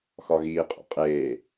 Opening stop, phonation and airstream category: ejective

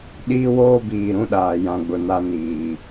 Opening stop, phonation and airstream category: implosive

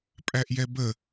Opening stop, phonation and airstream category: ejective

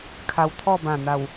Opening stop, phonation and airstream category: aspirated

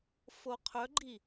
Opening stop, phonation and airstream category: aspirated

